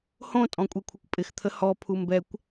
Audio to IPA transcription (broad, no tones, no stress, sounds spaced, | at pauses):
h õ tʼ ɔ̃ kʷʼ e kʷʰ ɪ kʷ pʼ ɪ x t̪ʰ ə h ɔ pʰ u m b ɛ kʷ